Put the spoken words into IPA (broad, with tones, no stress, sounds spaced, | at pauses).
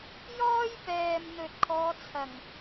j ɔː˥ j p ɛː˨ m n̪ ɵ˨ t̚ kʰ ɔː˨˧ t͡sʰ ɐ˨˩ ŋ